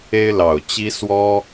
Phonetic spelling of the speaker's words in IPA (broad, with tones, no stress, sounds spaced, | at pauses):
e˥ ɪ̯ l ɑ˨˩ ʊ̯ t͡ɕ i˥ s w ɔ˥